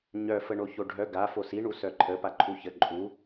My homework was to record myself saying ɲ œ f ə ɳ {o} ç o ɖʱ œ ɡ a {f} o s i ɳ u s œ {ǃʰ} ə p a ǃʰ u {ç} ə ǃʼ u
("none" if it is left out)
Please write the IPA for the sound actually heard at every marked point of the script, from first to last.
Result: o, f, ǃʰ, ç

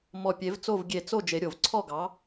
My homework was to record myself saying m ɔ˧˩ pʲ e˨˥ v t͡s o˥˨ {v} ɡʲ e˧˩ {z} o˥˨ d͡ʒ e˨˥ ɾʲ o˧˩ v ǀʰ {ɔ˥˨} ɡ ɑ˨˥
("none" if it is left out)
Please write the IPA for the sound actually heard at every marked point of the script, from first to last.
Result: v, t͡s, ɔ˥˨

